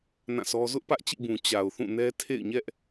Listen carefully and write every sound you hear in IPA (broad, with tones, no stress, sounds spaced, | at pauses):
n ã˦˨ sʰ ɔ˦ z ʊ˦ ʔ p ä˦ ʔ t͡ɕ ḭ˦˨ b ũ˨ t͡ɕ a˨ ʊ̯ θ ũ˦˨ n ɛ˦ tʰ ḛ˦˨ ɪ̯ ɲ ɛ˦ ʔ